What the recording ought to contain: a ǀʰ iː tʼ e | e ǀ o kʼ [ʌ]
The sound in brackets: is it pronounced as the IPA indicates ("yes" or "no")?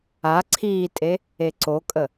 no